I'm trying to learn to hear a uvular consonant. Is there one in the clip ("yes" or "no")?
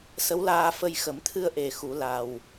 no